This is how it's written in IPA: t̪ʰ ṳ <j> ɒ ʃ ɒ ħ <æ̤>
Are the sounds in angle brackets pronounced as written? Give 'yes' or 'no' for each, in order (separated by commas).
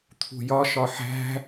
yes, yes